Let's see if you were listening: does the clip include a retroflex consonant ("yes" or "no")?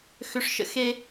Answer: yes